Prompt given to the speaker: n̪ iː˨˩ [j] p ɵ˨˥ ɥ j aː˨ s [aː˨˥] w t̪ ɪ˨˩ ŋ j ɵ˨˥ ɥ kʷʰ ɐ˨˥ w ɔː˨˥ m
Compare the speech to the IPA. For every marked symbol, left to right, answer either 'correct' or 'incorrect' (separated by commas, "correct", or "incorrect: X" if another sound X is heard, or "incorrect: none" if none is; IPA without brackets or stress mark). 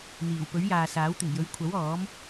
incorrect: w, correct